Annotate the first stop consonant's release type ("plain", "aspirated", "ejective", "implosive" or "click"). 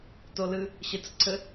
plain